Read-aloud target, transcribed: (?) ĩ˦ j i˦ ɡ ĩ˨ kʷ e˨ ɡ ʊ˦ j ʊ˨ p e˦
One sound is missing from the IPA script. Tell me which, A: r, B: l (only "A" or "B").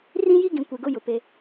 A